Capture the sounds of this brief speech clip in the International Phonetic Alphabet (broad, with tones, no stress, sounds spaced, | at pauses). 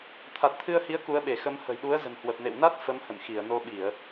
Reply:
t̪ʰ a˨˩ t̚ t̪ʰ ɨ˧ ə̯ h i˨˦ ə̯ k u˨˦ ə̯ ɓ e˧˩ x ə˨˦ m h ə̤˨˩ j ɗ u˨˦ ə̯ z ə̤˨˩ n h w ə˨˩ p̚ n ḛ˧˨ w n a˦˥ t̚ f ə˨˦ m h ə̰˧˨ n x i˧˩ ə̯ n o˧ ɓ i˧˩˨ ə̯